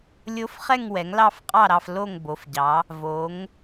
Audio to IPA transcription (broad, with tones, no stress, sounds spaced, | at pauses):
lʲ o˧˥ f χ ɛ˦˨ ŋ w ɛ˩˧ ŋ l ɑ˦˨ f qʼ ɑ˦˨ ɾ ɑ˦˨ f l o˦˨ ŋ b o˩˧ f ɟ ɑ˩˧ | v o˩˧ ŋ